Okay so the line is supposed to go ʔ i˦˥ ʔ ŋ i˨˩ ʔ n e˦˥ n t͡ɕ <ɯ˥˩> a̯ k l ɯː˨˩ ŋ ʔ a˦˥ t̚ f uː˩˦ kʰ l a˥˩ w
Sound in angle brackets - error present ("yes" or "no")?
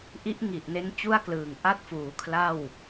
yes